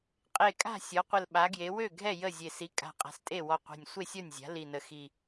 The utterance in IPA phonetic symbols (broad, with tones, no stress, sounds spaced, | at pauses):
qʼ e˧˩ kʼ a̤˥˩ sʲ ɔ˩˥ qʷ ə˧˩ l ɓ a˩˥ ɡ j e˩˥ w ø˥˩ ɡʱ ɛ˥˩ j ə˥˩ zʲ e˧˩ s i˩˥ kʼ a̤˧˩ qʼ a̤˧˩ s tʼ e˥˩ w ɔ˧˩ qʷ ɛ̤˧˩ nʲ sʷ e˥˩ sʲ ɔ˥˩ nʲ zʲ a̤˩˥ l i˧˩ n ə˧˩ x i˧˩